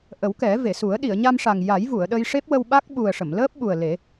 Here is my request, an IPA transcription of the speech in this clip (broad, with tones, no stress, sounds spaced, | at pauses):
ʔ ə˨˩˦ w k ɛ˨˩˦ v e˨˩˨ s u˨˩˦ ə̯ ɗ i˨˩˨ ə̯ ɲ a˧ m ʂ a˨˩ ŋ j a˨˩˦ j v u˨˩˨ ə̯ ɗ ə˧ j ʂ e˦˥ p̚ w ə˧ w ɓ a˦˥ k̚ ɓ u˨˩ ə̯ ʂ ə˨˩˨ m l əː˦˥ p̚ ɓ u˨˩ ə̯ l e˨˩˦